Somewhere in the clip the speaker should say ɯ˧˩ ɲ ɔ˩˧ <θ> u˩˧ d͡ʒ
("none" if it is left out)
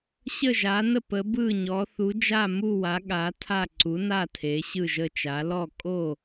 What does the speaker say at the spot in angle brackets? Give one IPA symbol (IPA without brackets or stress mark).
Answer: θ